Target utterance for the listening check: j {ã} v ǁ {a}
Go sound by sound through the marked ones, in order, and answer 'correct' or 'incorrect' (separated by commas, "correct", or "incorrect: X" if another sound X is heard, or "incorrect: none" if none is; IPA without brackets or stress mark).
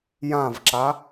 correct, correct